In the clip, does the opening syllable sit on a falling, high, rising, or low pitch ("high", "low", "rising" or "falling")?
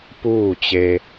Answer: falling